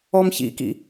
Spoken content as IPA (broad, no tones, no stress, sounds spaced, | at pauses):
ɔ m ç ḭ k ḭ